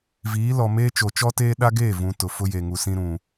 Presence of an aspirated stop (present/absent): absent